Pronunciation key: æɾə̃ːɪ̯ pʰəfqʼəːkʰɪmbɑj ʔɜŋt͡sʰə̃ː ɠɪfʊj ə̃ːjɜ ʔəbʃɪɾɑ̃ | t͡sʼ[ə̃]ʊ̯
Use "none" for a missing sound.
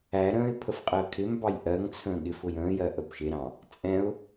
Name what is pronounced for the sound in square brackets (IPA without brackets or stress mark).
ɛ̃